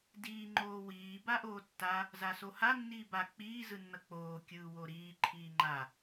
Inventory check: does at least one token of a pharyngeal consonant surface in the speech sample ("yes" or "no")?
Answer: no